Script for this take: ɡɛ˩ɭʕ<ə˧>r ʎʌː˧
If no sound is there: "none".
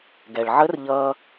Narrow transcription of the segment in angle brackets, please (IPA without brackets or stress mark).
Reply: ə˧˥